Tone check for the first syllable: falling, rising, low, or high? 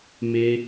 high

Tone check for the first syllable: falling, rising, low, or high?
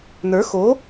rising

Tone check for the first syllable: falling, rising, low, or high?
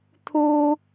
high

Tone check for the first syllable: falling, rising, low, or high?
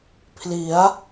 rising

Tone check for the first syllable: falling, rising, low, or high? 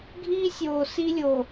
high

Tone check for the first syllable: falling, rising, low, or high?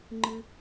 high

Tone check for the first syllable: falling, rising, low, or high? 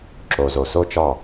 low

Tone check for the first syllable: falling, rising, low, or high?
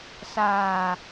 low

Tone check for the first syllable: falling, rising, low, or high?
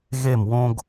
falling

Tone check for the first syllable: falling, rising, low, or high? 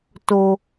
low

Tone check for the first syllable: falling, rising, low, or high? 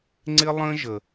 high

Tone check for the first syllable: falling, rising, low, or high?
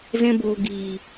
high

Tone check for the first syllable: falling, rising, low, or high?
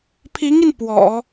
rising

